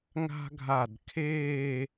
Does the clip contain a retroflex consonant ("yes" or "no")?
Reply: no